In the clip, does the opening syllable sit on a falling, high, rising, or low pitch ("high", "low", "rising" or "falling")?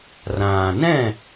low